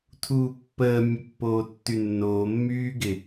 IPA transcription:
tʰuːpːəː mʲəpːoːtːynːoː mːyːɡɪ

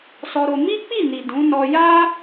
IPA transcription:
sɔ˧ɾo˧ mi˦k͡pi˦˨ni˨ dũ˨˦nɔ˧ ja˦

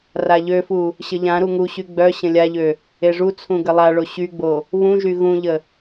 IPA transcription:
raʎøfu | ɕəʎãɾu ŋuɕy ɡ͡bœ ɕə̃lʲaʎø | eʐut͡sʰũ ɡəlˠaɭo ɕyɡ͡bo | βũʒy ɣũʎə

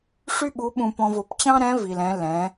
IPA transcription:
ʂy˥ɓu˧˥ɓũ˧ pɔ̃˧v o˩˧pt͡ɕɑ̃˥ɾɛ̃˧˥ vi˩lɛ̃˩˧ lɛ̃˩˧

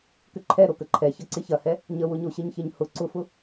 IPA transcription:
kʏǃʰɛ ɾokəǃʰɛçɐ ǀɪçɐhɛ | ɲəwʊɲo ɕɪɲçɪɲhʊ ǀʊfʊ

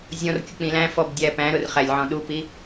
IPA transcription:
zʲɔ̃rkʲʊ k͡pĩlæ̃fɔb dʲæpæ̃ɾʊr χælʲʕɔ̃ɗupi

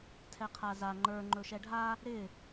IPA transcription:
tʰɛqʰaza ŋ͡ǃə˞ ŋ͡ǃɵʃɛɖʱa | ɾɪ

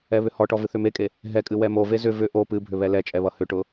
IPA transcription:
ɛβʏhɔʈɔ vɨθʏmekʼe | ɦɛkʼɨ wɛmove zʏ vʏ ʔo pɨ bʱʏβɛlɛt͡ʃʼɛ βʌhʏʈʊ

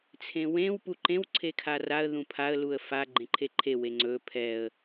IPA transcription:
t͡sʰẽwẽw puǃẽw ǀʰekʰaraə̯ ðũpʰaə̯ luə̯fa ɡ͡ǃẽǃʰeǃʰe weŋ͡ǀɵ pʰɛə̯

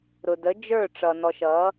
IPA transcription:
ɾʊ˨də˨˦ d͡ʒə˞˦˨ʈ͡ʂʌ˨nɔ˨ʃ ʌ˨˦

